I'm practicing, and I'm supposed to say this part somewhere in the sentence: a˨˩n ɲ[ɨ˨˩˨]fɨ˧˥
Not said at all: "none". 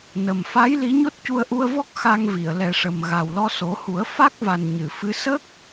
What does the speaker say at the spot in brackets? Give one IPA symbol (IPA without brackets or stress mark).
ɨ˨˩˨